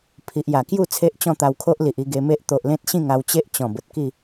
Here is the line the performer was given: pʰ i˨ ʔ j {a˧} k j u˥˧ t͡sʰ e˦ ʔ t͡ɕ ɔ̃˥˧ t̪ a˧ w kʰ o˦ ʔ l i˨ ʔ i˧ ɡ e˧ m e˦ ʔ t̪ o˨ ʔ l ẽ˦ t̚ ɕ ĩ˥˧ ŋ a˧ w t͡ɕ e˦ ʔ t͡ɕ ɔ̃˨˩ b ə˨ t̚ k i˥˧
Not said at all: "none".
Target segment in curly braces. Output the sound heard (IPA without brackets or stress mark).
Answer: a˨˩